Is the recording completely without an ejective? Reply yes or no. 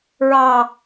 yes